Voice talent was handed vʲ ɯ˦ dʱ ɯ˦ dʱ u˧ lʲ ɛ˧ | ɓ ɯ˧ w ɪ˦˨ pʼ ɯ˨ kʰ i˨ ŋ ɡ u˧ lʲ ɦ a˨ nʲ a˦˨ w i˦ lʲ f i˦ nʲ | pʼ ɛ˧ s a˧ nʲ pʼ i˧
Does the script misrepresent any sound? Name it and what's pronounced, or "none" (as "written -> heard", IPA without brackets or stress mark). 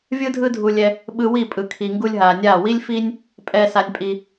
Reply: ɪ˦˨ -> i˦˨